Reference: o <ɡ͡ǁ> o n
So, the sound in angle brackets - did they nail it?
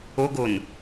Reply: no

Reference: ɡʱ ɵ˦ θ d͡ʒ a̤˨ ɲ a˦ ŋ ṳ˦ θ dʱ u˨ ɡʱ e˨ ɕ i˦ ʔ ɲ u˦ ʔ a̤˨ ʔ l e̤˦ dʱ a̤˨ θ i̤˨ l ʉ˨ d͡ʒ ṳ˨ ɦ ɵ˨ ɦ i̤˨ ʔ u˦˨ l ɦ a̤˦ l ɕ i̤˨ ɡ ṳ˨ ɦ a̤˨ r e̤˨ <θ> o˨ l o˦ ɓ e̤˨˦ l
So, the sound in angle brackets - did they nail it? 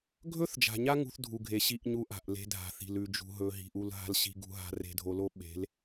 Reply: no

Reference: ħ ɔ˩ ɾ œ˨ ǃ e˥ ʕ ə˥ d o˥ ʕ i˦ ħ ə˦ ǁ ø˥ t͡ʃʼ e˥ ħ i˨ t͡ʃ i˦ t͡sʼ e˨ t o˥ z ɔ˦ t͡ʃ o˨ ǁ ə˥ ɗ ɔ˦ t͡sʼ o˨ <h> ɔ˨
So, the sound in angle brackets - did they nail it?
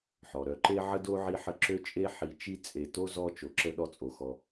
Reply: no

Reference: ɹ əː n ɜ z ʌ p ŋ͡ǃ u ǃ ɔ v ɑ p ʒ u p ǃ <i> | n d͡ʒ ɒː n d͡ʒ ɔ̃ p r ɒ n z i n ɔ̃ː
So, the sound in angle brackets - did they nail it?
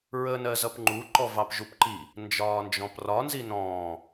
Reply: yes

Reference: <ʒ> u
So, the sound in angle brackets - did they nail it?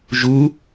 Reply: yes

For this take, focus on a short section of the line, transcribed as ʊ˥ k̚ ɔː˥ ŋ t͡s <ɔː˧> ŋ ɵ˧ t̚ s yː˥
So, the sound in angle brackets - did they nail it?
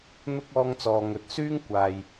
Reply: yes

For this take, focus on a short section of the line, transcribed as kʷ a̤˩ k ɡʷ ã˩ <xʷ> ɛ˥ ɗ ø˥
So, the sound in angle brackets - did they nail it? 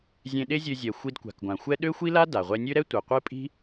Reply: yes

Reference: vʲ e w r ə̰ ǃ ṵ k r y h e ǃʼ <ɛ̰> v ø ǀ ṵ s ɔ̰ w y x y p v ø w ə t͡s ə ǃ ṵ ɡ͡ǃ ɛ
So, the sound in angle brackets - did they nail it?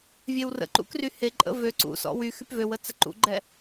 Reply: no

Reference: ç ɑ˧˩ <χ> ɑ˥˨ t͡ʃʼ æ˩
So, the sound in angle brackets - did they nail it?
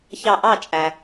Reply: no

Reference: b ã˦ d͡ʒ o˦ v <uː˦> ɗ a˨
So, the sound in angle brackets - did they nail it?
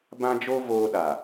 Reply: no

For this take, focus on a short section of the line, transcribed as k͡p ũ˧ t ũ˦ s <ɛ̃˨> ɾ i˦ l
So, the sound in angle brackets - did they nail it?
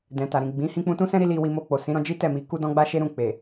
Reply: no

